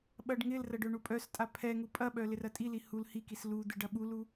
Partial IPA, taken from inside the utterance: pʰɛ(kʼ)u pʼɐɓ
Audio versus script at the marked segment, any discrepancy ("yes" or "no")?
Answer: yes